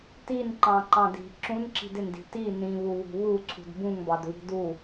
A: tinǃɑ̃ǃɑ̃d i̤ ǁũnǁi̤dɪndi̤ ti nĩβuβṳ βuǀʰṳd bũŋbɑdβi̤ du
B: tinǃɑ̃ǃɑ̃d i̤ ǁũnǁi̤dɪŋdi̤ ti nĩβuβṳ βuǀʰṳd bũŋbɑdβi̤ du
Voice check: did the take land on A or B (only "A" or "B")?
A